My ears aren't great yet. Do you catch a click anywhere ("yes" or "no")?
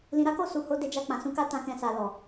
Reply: no